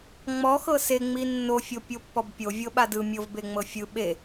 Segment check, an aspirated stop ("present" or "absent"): absent